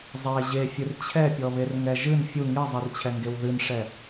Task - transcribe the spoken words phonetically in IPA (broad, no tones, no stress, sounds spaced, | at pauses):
zˤ e ʑ e fʲ ɨ r t͡ɕʰ ɛ pʲ ɔ β e r ŋ ɛ ʒ ɨ n fʲ u ŋ i zˤ i r t͡ɕʰ ɛ ŋ ɡ e w ð ɨ n ʂ ɛ